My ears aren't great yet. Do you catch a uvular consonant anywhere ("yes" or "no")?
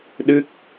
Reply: no